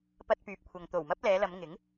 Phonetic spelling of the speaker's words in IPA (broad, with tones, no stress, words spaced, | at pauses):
pɐ˧t̚pyː˨p̚kʷʰɐ˨ŋ t̪o˨˩wmɐ˥p̚lɛː˨˧lɐ˨˧m ŋɪ˨˥ŋ